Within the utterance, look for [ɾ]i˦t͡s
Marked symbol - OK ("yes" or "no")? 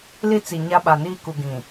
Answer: no